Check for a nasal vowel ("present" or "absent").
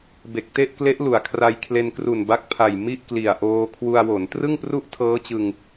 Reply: absent